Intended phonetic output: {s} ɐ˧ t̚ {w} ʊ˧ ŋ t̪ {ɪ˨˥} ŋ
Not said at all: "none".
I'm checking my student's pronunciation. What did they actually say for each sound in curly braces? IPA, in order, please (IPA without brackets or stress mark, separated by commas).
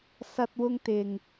s, w, ɪ˨